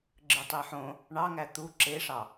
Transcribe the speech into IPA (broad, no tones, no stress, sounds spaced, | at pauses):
ɡ͡ǁ ɯ tˤ e ħ õ | ɳ ɑ ŋ æ t̪ u ǁ e ʂ ɑ